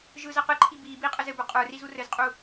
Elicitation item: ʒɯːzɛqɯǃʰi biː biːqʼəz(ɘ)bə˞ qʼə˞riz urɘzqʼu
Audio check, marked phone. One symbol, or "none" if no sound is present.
ɘ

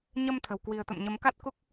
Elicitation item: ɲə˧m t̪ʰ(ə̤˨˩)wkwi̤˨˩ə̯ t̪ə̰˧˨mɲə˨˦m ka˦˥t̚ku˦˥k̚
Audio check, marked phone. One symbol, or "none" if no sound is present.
ə̤˨˩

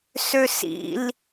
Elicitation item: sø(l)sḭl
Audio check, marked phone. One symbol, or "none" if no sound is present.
none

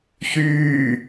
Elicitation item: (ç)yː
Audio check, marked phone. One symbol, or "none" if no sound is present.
ç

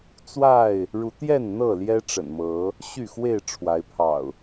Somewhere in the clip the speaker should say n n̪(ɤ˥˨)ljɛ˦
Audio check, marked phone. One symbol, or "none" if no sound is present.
ɤ˥˨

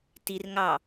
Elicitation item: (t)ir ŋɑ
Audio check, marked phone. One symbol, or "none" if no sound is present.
t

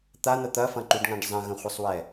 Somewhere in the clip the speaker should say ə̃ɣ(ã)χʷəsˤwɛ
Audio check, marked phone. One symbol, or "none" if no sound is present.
ə̃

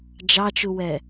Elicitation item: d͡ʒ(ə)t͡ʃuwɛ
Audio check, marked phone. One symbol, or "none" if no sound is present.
ɑ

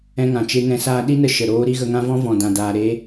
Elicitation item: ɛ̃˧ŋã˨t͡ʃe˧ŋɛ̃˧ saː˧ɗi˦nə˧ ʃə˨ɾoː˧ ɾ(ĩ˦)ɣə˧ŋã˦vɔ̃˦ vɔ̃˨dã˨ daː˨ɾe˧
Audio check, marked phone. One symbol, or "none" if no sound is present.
i˦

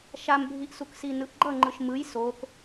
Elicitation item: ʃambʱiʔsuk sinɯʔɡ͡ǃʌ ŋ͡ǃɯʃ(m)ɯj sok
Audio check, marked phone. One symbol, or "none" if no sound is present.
m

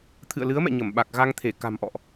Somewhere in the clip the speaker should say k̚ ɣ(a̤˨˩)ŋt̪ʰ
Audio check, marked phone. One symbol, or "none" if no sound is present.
a˧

